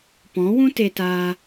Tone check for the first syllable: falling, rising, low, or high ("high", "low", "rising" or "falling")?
rising